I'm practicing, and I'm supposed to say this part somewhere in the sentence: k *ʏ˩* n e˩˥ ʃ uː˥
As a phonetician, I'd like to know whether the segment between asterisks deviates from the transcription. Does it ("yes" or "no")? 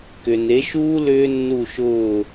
no